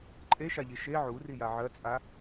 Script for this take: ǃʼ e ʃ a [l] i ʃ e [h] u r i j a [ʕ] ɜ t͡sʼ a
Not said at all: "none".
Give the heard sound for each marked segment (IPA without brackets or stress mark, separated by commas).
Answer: ʎ, ʕ, ʕ